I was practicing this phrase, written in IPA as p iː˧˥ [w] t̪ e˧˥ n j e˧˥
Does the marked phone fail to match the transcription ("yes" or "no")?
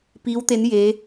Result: no